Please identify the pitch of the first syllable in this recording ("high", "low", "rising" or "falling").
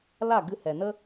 falling